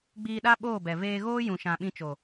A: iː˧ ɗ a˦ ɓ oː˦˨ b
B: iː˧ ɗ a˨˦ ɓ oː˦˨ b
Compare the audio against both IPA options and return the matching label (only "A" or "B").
A